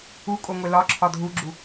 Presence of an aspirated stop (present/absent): present